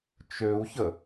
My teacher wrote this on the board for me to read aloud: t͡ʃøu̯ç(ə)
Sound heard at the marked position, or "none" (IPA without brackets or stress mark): ə